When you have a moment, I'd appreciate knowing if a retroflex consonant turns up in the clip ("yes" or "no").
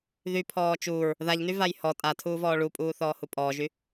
yes